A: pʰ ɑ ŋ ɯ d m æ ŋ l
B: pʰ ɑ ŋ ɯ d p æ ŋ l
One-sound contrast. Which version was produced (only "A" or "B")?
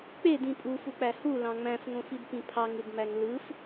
A